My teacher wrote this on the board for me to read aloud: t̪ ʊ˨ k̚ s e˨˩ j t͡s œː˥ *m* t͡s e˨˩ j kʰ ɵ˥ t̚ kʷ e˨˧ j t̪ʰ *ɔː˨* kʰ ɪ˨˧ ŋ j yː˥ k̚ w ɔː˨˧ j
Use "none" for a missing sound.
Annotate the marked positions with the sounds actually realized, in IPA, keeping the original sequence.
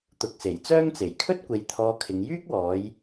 ŋ, ɔː˧

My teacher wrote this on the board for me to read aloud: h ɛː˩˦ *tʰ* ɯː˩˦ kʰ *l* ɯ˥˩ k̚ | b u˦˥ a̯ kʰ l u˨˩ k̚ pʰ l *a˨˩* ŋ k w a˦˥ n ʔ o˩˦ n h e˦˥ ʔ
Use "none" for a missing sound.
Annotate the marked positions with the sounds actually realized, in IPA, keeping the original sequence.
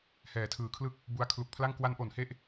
tʰ, l, a˥˩

